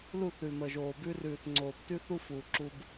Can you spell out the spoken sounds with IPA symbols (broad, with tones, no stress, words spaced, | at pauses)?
lu˦˨θʉ˨mə˨ʒoː˨ bʉ˧rʉː˨θŋ͡ǀoː˨b tʉ˦θu˦ fuː˨ǁu˧b